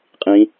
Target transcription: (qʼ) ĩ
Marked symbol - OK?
yes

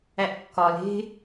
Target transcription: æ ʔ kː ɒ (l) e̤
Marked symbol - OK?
yes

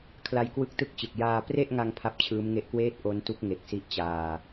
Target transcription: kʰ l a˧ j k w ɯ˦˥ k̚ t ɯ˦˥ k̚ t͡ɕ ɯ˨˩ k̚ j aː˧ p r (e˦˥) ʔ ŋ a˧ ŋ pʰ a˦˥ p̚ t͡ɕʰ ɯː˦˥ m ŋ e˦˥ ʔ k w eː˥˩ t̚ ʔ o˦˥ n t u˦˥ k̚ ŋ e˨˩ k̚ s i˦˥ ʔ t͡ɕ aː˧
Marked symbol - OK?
no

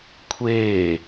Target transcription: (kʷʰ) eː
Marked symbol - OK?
yes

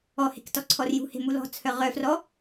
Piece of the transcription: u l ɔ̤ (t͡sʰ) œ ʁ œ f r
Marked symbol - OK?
yes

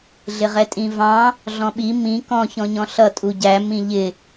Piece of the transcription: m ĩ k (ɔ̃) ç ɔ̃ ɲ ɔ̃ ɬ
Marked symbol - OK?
yes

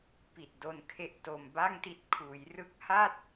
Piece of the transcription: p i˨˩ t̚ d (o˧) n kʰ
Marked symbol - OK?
yes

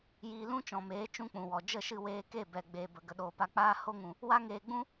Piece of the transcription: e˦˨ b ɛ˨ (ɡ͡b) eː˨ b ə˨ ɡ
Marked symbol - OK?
yes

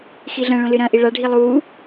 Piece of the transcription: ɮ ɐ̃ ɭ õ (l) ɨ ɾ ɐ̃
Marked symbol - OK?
yes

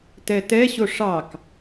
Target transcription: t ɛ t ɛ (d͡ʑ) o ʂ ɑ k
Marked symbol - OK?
no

